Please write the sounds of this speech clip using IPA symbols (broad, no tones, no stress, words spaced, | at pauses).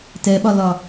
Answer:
tɛɓɒlɒ